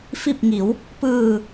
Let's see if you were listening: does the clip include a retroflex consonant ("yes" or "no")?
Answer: no